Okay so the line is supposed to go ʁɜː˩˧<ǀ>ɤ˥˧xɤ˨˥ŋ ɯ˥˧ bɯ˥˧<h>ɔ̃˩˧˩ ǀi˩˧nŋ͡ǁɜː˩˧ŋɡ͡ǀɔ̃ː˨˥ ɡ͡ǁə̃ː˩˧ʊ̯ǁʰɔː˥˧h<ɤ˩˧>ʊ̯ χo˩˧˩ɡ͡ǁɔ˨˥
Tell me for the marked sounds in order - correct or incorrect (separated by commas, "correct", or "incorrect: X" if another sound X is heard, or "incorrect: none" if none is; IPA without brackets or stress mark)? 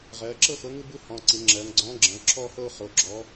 incorrect: ǁ, correct, incorrect: ɤ˥˧